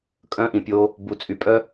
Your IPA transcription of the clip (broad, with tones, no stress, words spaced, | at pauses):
kʼœ̃˦ʔĩ˨pʲo˦ | bu˨t͡sʼy˨pʼœ˦